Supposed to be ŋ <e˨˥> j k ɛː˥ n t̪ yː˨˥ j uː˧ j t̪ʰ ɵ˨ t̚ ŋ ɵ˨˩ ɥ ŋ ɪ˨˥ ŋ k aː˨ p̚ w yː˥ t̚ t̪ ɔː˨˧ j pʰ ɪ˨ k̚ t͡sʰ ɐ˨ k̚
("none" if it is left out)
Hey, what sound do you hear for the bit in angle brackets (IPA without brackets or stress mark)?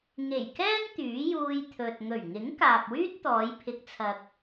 e˨˩